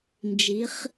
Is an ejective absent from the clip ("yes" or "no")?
yes